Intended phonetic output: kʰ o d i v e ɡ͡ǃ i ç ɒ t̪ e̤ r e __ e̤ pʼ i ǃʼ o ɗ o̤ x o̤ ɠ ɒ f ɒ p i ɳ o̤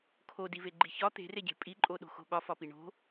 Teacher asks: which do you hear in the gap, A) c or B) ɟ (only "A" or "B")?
B